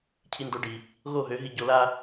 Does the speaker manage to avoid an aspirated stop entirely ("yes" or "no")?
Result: no